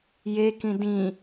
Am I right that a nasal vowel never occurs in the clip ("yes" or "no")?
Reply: no